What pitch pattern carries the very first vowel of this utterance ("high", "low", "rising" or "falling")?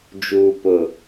low